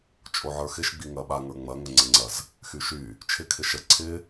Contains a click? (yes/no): yes